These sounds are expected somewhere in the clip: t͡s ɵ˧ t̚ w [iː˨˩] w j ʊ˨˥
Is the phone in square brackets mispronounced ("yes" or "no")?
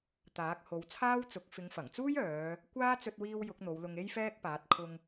yes